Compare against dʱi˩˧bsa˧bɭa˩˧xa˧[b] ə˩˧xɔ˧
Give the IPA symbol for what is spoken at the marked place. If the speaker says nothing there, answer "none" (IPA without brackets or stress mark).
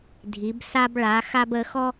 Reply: b